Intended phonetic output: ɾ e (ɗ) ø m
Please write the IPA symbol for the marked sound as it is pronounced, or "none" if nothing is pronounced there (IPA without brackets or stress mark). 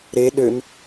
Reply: ɗ